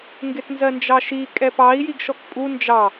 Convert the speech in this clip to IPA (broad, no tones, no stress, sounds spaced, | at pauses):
ŋ ɡ ɪ t n z ɜ n d͡ʒ ɑ ʃ i kʼ ɛ p ɑ i̯ j i ɡ ʃ ɔ k pʼ u n d͡ʒ ɑ